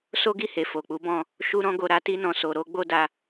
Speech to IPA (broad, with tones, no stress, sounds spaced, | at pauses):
s o˦ ɡ i˦˨ h e˨ f o˨ k͡p u˨˦ b ɔ̃˦˨ | ʃ u˦ ɾ ɔ̃˦ ɡ o˧ ɾ a˦ t i˦ n ɔ̃˧ s o˧ ɾ o˦ ɡ͡b o˦ d a˧